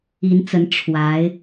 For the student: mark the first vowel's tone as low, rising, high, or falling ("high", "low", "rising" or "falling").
rising